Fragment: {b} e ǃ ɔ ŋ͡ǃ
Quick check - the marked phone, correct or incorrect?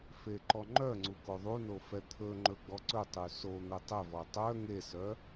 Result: incorrect